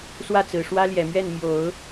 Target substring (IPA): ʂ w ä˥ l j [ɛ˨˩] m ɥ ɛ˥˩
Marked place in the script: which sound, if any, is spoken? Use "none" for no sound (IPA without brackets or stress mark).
ɛ˨˩